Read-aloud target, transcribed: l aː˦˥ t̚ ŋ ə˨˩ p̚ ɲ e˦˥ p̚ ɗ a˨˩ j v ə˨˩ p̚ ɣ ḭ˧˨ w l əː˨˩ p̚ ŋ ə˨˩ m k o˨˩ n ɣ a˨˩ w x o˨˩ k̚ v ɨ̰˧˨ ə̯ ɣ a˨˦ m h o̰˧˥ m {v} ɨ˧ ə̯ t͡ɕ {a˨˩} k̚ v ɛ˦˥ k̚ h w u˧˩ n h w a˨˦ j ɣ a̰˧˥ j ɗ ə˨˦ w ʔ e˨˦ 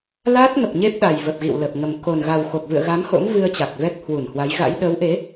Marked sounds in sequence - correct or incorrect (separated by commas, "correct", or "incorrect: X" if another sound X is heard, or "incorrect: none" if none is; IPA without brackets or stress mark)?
correct, correct